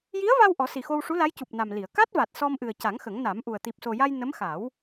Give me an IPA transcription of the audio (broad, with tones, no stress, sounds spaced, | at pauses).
j i˧˥ ə̯ v a˧ w ʔ ɔ˨˩˦ s i˨˩ x o˧ w ʂ u˧˥ l a˧˥ j c u˨˩ p̚ n a˨˩ m l i˨˩˨ ə̯ k a˦˥ t̚ v a˨˩ t̚ s ɔ˧ m ʔ ɨ˨˩ ə̯ c a˨˩˦ ŋ x ə˨˩˦ ŋ n a˨˩˦ m ʔ u˨˩ ə̯ t̪ i˨˩ p̚ s o˨˩ j a˧ j n ə˧˥ m x a˨˩˦ w